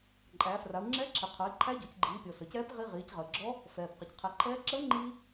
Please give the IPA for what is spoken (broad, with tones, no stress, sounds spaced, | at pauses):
ǃʼ æː˩˧ f r a˩˧ u̯ ŋ͡ǁ ɛː˧˥ ǁʰ i˩ qʰ ə˞˩˧ i̯ ǃʰ æ˧˥ ɟ o˩˧ c ɡ͡ǃ iː˩˧ pʲ ɔ˩ s ə˩ c ɛː˧˥ p ʁ i˧ ʁ iː˩˧ c ʁ əː˩ ɡ͡ǁ ɔ˧˥ | f ɛː˩ p q ə˩ c qʰ ɛ˩˧ ǃʰ ɛː˧˥ ǁ əː˧˥ ŋ͡ǃ iː˧